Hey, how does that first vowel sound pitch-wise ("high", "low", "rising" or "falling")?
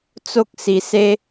high